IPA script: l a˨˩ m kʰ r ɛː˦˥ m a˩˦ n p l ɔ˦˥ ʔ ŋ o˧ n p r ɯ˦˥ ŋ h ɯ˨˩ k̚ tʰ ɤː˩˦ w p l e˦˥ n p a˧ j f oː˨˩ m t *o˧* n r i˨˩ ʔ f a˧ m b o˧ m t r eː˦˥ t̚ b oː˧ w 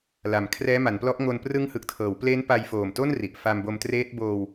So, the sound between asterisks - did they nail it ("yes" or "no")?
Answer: no